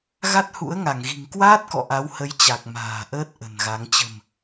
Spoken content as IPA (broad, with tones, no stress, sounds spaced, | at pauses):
ɣ a˦˥ t̚ h ṵ˧˥ ə̯ ŋ a˧˩ ŋ ɣ i̤˨˩ ŋ k w aː˦˥ t̚ k ɔ̰˧˨ ʔ a˨˦ w h ə˨˦ j t͡ɕ a˨˩ k̚ m a̤ː˨˩ ʔ əː˦˥ t̚ ʔ ə̤˨˩ n ɣ a˨˦ ŋ t͡ɕ ə̤˨˩ m